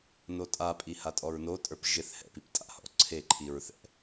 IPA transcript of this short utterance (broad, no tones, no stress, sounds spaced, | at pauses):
n o tʼ a pʼ i h a tʼ ɔ ɹ n o tʼ ə˞ p ʒ ɪ θ h ɛ̰ p i p tʼ a̰ h ɔ̰ ǀʰ e ǃʰ i ɹ θ ɛ̰